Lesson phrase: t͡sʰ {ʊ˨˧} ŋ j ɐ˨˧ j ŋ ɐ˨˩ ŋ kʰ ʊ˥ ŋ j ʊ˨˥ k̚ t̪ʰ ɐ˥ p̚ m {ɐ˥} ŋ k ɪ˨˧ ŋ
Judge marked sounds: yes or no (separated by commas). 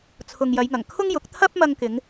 no, no